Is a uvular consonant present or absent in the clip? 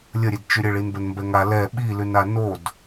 absent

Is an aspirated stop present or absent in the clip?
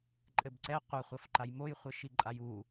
absent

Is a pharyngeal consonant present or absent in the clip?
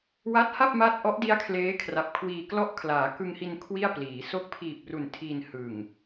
absent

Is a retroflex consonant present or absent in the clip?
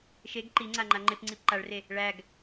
present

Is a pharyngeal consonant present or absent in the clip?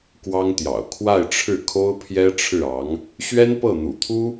absent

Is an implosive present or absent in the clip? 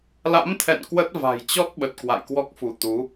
present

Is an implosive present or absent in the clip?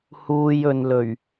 absent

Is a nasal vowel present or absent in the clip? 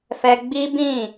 present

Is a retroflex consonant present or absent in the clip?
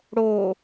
present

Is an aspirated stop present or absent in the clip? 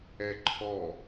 present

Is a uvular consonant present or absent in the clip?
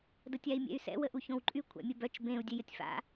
absent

